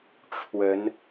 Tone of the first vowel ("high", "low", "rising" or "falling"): rising